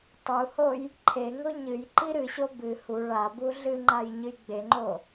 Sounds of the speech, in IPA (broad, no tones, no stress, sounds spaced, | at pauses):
tˤ u h o j | ǃʰ e ŋ o ɲ ɨ j ǃ i ɾ ɨ ɕ o b ɨ h u ɭ a b u ɮ ɨ ŋ͡ǃ a j ɲ ɨ j ɡ͡b e ŋ͡ǃ o